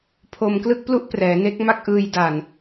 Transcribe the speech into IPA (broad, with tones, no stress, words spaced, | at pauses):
pʰo˧mklɯ˥˩k̚plu˥˩ʔ prɛː˩˦ne˦˥k̚ ma˥˩k̚ʔɯː˧j da˨˩n